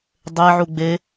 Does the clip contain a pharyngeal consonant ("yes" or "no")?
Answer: yes